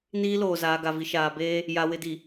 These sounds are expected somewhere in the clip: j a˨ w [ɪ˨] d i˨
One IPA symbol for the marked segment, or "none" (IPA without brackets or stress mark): ɪ˨